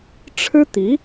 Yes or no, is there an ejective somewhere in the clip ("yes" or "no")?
no